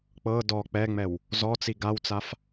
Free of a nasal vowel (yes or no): yes